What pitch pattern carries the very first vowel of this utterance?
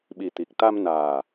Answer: low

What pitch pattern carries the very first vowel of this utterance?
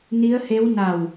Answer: rising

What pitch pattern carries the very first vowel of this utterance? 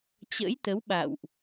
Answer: rising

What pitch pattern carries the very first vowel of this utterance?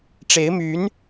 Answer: rising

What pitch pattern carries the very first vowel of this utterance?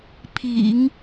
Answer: low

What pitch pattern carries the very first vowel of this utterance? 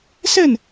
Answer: falling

